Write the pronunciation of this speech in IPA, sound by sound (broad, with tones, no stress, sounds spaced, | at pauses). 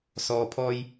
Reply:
s ɔː˨ pʰ ɔː˧ j